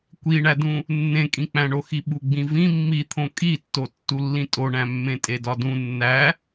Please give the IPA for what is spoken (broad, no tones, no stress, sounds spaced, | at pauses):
kʷ i ɳ æ d ũ | nː ẽ kʼ ĩ k͡p æ̃ ɳ o x i ɓ u ɡ͡b ĩ v ĩ mː i t̪ʰ õ kʼ i tː o tː u lː ĩ tʼ o ɳ æ̃ mː ẽ tʼ e d ɒ d ũ nː æ